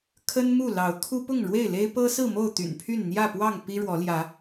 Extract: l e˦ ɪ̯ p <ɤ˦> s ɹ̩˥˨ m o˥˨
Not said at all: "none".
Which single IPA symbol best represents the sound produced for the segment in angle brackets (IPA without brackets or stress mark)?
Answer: ɤ˦